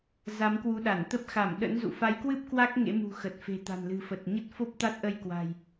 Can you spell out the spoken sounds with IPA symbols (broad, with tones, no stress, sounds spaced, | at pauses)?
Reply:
z a˨˦ m k w u˨˦ ɗ a˧˩ n t̪ ə˦˥ p̚ x a˧˩ m ɗ ə̰˧˥ n z ṵ˧˨ f a˨˦ j k w ɨ˦˥ p̚ k w a˦˥ k̚ ŋ ḛ˧˥ m ṳ˨˩ x ə˨˩ t̚ f e̤˨˩ t̪ a̤˨˩ n l ɨ̤˨˩ f ə˨˩ t̚ ɲ ə˦˥ t̚ f o˦˥ p̚ t̪ a˦˥ t̚ ʔ ə˧ j k w a̤˨˩ j